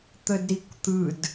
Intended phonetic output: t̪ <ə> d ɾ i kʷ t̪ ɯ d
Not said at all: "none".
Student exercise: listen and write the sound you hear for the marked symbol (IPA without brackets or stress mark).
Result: ə